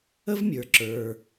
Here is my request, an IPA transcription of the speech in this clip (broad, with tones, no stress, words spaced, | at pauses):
ə˥vmʲə˞˩ ǁə˞˩